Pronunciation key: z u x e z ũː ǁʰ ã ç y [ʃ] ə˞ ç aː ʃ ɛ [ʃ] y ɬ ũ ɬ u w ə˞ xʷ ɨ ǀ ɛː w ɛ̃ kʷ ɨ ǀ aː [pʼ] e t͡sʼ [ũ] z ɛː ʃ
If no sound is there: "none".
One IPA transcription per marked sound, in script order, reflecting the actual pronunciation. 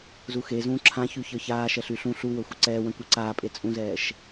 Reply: ç, ɬ, pʼ, ũ

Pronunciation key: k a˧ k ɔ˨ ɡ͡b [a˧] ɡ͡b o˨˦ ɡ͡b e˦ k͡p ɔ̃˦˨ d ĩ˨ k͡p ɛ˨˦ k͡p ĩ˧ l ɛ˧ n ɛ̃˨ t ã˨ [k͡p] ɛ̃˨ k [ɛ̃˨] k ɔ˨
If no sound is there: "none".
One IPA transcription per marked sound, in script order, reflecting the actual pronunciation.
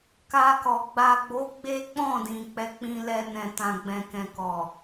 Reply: a˨, ɡ͡b, ɛ̃˨

